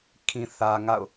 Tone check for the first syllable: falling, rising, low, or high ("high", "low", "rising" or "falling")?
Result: low